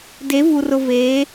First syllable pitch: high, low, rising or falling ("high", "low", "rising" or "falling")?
rising